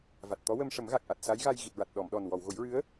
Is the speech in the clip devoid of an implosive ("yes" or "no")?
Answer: no